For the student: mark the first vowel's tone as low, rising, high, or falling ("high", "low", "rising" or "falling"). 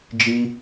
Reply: high